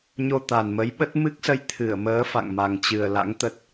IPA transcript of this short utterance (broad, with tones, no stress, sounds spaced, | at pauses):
ɲ o˧ t̪ a˨˩ n m ə˨˦ j ɓ ə˦˥ t̚ m ɨ˦˥ k̚ s ə˧ j t̪ʰ ɨ˧˩ ə̯ m əː˨˦ f a̰˧˨ ŋ m a˨˩ ŋ t͡ɕ ɨ˨˩ ə̯ l a̰˧˥ ŋ t̪ ə˦˥ t̚